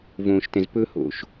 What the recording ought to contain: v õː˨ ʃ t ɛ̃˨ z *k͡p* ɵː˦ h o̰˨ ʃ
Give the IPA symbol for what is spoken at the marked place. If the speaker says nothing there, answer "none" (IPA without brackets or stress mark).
p